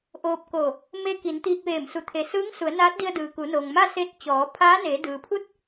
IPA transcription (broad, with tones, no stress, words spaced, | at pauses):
ʔoː˧p̚ko˧˩ | me˧ ki˩˧n t̪iː˧k̚ʋeː˧˩msu˧˩ t̪ʰe˩sɯː˧˥ŋ su˩˧ə̯naː˧˥t̚di˧ə̯ dɯː˩ku˩˧noː˩ŋma˥˨ se˧t̚ t͡ɕɔː˩˧ pʰaː˧˥neː˩˧ dɯː˩pʰu˥˨t̚